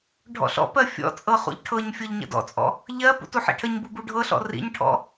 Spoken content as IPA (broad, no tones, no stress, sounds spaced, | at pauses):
ɖʱ ɔ̰ ɬ ɔ̰ p ɜ fʲ ɔ̰ t͡sʼ ɤ χ ṵ ʎ ʈʰ ɤ ɲ fʲ ɤ ʎ ɲ ə̰ d ɔ̰ t͡sʼ ɔ̰ | ʎ ɜ p ṵ t u ħ ḭ ʈʰ ə ɲ b u b u ɖʱ ɤ ɬ ɔ̰ r ḭ ɲ ʈʰ ɔ̰